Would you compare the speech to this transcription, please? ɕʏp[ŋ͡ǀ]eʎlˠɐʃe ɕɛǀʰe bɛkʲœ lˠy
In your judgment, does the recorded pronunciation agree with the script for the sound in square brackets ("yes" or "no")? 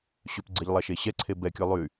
no